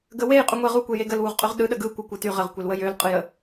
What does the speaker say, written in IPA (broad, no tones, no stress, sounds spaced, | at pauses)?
ɡ ə w e j qʼ y ŋʷ e ʁ u kʷ e j e ɡ ə l w u ʁ qʼ y ʁ ɗ ɯ ɗ ə ɡ ɯ kʷ ɪ kʷ ɯ t y ʁ ə ʁ kʷ e l w ə j ø l qʼ ɯ j ə